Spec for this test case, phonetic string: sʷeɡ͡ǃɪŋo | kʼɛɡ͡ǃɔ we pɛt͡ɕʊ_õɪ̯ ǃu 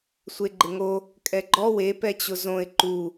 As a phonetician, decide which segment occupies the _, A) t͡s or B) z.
B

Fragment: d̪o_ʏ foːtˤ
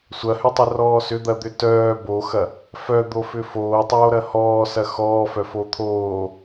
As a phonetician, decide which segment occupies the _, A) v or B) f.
B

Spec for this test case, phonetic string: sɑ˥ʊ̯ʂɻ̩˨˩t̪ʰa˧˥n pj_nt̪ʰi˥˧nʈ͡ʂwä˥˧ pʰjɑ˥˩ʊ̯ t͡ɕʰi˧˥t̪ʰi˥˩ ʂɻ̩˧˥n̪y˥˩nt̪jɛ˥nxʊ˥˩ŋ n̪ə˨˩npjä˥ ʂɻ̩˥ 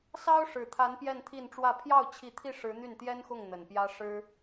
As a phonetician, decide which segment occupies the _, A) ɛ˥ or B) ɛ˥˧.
B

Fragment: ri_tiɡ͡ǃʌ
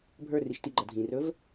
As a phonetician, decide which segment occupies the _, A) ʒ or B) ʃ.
B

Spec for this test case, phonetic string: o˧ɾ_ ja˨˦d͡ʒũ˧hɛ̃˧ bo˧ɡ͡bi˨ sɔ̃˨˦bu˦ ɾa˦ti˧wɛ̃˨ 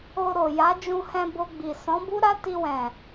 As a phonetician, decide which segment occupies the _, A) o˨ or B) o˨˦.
A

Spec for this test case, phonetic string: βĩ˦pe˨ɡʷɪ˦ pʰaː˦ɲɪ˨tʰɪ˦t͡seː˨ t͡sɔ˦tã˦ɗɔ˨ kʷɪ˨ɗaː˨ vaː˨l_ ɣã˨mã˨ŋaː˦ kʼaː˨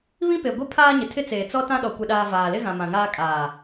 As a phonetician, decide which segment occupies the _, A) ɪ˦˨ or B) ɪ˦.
B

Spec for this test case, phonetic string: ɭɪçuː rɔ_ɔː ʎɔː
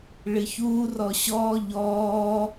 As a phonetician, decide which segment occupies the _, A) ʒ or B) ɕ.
B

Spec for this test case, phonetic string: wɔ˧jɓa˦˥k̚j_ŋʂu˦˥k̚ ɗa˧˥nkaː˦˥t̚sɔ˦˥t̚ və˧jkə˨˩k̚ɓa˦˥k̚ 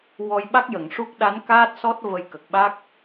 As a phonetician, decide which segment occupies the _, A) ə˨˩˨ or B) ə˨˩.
A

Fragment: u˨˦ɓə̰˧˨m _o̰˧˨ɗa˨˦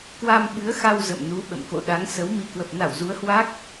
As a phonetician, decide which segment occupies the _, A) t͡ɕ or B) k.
B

